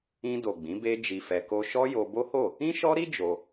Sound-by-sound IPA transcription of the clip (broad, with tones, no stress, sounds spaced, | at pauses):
ĩ˧ d o˨ ɡ͡b ĩ˨˦ b e˦ d͡ʒ i˧ f ɛ˧ k o˦ ʃ ɔ˦ j o˧ b o˦ h o˦˨ | ĩ˦ ʃ ɔ˦ ɾ i˦ d͡ʒ o˧